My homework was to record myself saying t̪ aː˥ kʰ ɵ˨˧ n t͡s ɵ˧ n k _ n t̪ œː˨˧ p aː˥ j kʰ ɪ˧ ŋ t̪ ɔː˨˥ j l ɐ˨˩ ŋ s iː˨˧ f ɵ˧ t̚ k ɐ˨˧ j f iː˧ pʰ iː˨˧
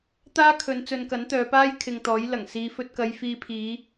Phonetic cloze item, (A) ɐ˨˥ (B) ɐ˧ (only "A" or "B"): A